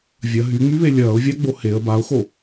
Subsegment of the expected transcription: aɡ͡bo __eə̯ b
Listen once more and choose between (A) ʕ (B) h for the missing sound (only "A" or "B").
B